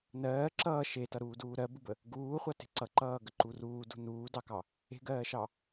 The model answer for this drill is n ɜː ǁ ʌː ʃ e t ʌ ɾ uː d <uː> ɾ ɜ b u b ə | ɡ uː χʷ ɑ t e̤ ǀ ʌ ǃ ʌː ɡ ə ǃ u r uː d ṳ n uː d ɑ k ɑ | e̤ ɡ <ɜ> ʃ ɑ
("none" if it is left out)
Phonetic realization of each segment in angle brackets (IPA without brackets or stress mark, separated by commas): uː, ɜː